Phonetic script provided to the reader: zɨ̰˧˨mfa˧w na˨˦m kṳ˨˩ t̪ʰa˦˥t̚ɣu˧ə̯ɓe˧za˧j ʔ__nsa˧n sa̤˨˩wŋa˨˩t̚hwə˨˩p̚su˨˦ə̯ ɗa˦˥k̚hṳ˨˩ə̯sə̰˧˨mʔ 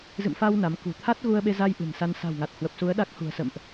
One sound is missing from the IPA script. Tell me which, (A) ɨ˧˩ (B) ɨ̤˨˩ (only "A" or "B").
B